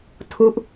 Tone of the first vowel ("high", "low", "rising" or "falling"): falling